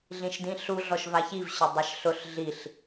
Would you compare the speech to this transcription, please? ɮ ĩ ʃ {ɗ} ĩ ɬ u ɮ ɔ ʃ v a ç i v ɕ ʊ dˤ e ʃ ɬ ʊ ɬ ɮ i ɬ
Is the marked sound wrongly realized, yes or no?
yes